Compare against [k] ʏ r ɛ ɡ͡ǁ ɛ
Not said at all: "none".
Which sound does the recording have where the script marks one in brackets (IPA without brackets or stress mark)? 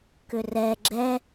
k